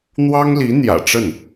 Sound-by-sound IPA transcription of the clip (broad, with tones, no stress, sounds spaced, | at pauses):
n̪ w ɑ˥ ŋ l i˧˥ n̪ j ä̰˨˩ ʈ͡ʂ ə˥˩ n